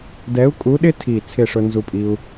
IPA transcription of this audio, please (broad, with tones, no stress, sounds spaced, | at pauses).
d ɛ˨˥ u̯ kʼ u˨˥ ɗ ɪ˦ tʰ i˨˩ t͡sʰ ɪ˥˨ ʂ ʊ˦ n z u˦ pʼ i˦ u̯